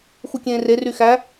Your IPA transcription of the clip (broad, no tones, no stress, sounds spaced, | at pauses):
x u kʲ ẽː r e r y x æ